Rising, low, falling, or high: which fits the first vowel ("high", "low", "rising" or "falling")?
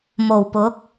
low